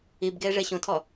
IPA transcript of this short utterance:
ibɡeːʐe ɕõtʰɔ

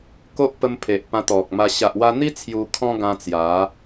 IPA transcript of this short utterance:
ko˦ʔpə˧m pʰe˨ʔpã˧t̪ɔ˨k̚ma˧ ɕa˨ʔwa˧n̪i˦ t͡sʰju˧kʰɔ̃˦ɡã˧ t͡sja˨˦

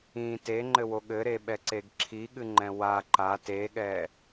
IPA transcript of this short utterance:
ĩ teŋ͡ǃɘwo ɠɘɾeɓɛǀeɡ ǁʰiɠɨŋ͡ǃɛ̃ wa ǃa teɠɛ

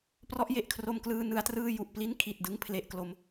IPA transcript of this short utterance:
prɔ˦˥ʔje˨˩ʔkʰro˧mklɯː˧ nɯ˧a̯trɯː˥˩ ju˨˩ʔpli˥˩n kʰi˨˩t̚dɯ˥˩ŋ pʰle˦˥ʔklo˦˥m

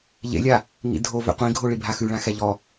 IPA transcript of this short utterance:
ʎḛlʲa | ŋḭdʱo vɛ̰qʷĩɡʱo ɭibʱaxʉɭã xɛʎɔ

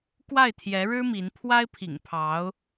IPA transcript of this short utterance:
kwa˥˩ɪ̯t̪ʰjɛ˧˥ɻɻ̩˥ mi˧˥n pʰwa˥ɪ̯pʰḭ˨˩ŋpʰɑ˧˥ʊ̯

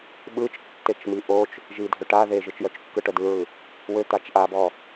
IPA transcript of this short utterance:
ɓɯt͡ʃ tːet͡ʃmiʔot͡ʃ | ʒidʱøʈa ðeʒɯt͡ʃjœt͡ʃkːɯ ʈœdɯɹɯ | wø t̪at͡ʃʔabɔ

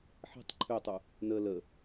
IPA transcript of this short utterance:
ħe̤tˤ ǃʰøtˤu | nə lə

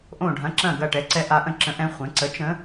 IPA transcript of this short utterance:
ʔõ˦˨ɖʱɐ̃˧˥ ǁɐ̃˦˨ɡɐ˦˨ ʈɛ˧˥ǀɛ˧˥ ʔa˧˥ʔə̃˦˨ ǁə̃˧˥ʔɛ̃˧˥ χʷɛ̃˩˥ ǀə˩˥ t͡ʃə̃˧˥

